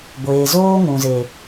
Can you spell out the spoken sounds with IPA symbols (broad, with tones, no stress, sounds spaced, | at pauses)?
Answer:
ɡʷ eː˨ z oː˦ ŋ ũ˨ z e˨